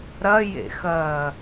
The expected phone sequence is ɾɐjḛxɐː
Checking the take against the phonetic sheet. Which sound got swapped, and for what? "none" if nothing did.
none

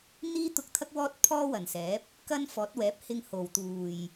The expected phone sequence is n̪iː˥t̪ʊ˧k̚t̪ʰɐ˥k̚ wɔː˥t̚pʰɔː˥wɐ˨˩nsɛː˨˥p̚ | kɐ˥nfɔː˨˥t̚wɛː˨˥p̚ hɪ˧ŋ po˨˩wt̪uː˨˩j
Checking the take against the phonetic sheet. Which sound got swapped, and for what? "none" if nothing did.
p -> h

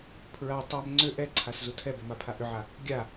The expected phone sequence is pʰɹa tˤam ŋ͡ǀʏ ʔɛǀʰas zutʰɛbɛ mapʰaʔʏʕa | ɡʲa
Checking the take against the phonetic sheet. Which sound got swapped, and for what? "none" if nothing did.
none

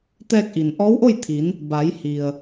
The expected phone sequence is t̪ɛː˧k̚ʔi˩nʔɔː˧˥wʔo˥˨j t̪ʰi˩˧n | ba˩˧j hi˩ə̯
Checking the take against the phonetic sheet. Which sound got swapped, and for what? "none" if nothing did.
none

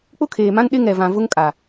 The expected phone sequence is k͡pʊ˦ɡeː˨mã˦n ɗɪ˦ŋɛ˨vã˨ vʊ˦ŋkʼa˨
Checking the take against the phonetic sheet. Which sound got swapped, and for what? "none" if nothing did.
ɡ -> kʰ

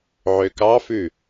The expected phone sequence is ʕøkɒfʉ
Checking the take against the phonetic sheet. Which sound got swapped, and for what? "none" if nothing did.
ɒ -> ɑ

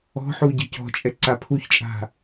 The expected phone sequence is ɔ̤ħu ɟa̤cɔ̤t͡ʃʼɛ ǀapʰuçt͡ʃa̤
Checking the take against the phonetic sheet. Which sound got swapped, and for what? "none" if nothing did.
t͡ʃ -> t͡ʃʼ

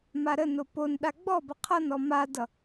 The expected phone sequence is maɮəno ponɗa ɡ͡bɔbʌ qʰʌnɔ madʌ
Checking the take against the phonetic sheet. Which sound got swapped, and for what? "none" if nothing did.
ɮ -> ɾ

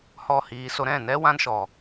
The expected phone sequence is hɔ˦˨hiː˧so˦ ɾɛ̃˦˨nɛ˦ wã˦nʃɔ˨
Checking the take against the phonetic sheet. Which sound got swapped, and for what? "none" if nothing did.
none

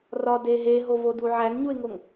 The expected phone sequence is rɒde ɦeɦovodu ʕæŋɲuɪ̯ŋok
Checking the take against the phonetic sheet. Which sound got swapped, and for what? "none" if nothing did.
k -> ŋ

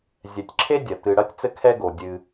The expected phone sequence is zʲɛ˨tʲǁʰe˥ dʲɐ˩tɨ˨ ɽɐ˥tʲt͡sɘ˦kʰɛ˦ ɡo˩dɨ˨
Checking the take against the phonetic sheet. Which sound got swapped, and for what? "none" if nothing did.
d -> dʲ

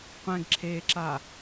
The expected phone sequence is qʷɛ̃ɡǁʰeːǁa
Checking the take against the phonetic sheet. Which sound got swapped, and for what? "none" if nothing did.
none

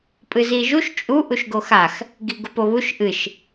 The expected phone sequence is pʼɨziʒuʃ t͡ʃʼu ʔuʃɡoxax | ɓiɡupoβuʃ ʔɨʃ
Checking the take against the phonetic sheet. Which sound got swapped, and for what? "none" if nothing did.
ɓ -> ɡ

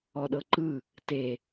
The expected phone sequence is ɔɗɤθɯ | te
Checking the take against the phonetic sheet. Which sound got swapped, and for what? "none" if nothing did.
θ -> ǃ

